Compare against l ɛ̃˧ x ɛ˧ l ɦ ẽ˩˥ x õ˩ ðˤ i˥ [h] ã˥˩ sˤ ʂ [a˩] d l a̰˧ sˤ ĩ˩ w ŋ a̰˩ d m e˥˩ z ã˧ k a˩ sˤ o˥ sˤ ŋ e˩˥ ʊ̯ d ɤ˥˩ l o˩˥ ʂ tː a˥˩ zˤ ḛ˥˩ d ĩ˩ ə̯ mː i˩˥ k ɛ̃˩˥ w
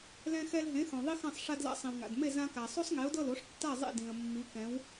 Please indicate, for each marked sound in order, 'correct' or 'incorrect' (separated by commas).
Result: incorrect, incorrect